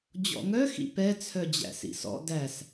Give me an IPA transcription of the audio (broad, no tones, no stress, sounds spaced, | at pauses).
d͡ʑ ɔ̰ ŋ œ x ḭ p ɛ t͡sʰ œ d͡ʑ æ̰ s ḭ s ɔ̰ d æ s